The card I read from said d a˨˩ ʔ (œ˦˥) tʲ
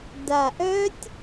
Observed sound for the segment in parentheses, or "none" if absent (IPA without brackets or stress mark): œ˦˥